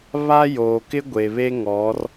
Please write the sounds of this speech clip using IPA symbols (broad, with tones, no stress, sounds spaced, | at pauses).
β a˦ j oː˨ k ɪ˦ ɡʷ e˨ β e˦ ŋ ɔ˨˦ r